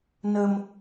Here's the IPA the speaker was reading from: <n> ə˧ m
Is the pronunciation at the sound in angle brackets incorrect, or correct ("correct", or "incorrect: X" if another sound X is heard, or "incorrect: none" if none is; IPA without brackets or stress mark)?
correct